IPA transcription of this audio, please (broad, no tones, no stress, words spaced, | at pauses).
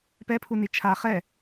pɛpʰuni t͡ʃʰa χɛ